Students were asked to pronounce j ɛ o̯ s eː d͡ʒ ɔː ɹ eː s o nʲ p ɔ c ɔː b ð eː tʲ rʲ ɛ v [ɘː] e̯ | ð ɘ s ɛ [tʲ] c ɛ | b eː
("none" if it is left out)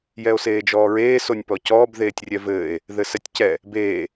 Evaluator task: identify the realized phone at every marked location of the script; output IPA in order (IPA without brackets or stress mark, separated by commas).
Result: ɘː, tʲ